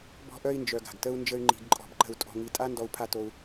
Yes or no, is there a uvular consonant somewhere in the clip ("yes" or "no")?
no